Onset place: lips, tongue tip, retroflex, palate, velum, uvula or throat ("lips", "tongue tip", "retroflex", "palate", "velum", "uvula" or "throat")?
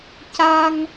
palate